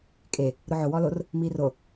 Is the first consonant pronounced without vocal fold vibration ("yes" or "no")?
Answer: yes